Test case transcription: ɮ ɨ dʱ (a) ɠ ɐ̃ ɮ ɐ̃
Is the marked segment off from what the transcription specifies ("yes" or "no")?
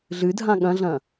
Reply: yes